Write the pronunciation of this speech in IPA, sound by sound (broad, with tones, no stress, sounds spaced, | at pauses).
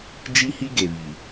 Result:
d͡ʒ i˦ h i˦ ɡ e˨ β i˨